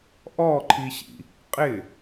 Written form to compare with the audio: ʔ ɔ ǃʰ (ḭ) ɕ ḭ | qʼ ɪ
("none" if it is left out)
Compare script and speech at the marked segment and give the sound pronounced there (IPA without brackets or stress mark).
i